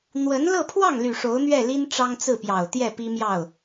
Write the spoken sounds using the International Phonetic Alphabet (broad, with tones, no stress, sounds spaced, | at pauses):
n̪ w ə˧˥ n l ɤ˥˧ pʰ w ɑ˥˩ ŋ l y˨˩ ʂ o˧˥ ʊ̯ n̪ ɥ ɛ˥˩ l i˥ n ʈ͡ʂ ɑ˥ ŋ t͡s ɹ̩˥˩ p j ɑ˨˩ ʊ̯ t̪ j ɛ˥˩ p i˥ m j ɑ˥˩ ʊ̯